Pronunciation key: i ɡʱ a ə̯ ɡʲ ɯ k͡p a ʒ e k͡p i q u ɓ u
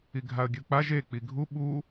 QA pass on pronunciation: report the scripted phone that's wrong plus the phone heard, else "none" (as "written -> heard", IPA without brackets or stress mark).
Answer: q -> ɡʱ